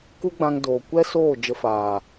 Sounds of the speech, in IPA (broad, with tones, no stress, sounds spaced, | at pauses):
k u˦ ɡ͡b ã˧ ŋ d oː˨ kʷ ɛ˦ s oː˦˨ d͡ʒ ə˧ f aː˨